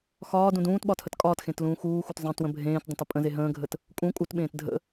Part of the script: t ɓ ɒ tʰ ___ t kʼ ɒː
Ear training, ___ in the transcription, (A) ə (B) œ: A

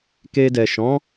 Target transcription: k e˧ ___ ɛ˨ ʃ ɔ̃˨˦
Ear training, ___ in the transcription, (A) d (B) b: A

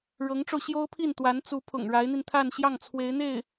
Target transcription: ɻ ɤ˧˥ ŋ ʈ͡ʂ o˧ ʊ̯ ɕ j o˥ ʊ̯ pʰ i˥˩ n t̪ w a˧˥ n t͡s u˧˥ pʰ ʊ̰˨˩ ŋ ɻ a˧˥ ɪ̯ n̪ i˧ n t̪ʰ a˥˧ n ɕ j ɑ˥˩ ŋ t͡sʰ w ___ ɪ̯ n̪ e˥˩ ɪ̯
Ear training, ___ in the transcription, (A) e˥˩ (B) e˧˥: B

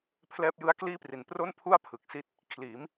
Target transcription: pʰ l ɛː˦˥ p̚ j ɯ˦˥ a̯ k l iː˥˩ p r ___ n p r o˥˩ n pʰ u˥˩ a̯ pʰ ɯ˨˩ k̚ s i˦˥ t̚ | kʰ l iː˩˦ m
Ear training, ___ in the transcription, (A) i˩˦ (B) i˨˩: A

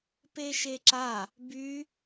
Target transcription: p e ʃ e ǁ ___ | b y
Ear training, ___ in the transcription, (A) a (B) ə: A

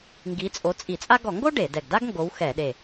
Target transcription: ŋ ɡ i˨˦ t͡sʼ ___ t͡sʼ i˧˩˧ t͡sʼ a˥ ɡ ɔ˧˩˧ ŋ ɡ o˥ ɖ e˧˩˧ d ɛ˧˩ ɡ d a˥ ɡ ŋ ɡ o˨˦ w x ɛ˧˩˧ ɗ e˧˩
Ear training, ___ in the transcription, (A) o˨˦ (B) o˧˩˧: A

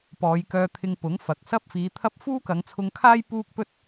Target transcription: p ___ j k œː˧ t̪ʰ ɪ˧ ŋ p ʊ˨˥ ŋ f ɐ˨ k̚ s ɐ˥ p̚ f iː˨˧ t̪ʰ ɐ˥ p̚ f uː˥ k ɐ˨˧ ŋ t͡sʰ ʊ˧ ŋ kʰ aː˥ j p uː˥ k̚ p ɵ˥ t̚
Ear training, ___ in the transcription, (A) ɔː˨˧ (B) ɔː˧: A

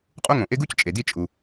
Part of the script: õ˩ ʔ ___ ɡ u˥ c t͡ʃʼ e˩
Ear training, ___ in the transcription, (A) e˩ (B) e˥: B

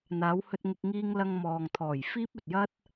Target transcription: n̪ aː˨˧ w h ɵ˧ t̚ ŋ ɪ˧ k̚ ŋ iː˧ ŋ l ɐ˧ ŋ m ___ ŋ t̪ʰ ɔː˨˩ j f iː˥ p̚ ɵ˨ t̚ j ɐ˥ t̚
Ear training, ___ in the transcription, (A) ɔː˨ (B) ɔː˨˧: A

